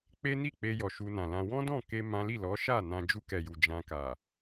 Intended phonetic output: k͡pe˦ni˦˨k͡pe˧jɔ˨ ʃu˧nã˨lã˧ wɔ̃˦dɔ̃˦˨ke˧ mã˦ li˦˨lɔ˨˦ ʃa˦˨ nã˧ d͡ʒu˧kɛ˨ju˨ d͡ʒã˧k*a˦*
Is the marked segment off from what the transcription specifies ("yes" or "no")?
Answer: yes